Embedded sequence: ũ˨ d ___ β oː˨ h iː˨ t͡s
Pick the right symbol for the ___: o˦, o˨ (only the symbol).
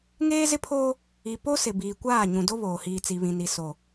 o˦